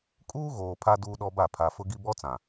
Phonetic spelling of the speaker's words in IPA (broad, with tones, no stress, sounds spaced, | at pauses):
kʼ uː˦ ɣ oː˨ pʰ a˦ d uː˦ ɗ ɔ˦ b a˦˨ pʰ a˨ f ʊ˦ ɡ i˦ b ɔ˦ t͡s ã˨